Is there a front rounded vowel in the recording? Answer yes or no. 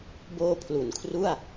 no